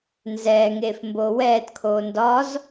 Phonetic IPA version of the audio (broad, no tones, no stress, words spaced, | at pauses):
nzɛːŋeːf mboːwɛːtkʰoː ndɒz